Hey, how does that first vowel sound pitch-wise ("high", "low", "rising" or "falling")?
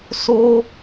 high